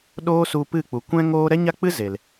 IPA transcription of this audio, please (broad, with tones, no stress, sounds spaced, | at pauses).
ɗ oː˦ s u˧ p ɨ˦˨ k͡p u˨ kʷ ɛ̃˦ ŋ oː˦ ɾ ɛ˦ ɲ a˦ k͡p ɨ˦ z e˨ l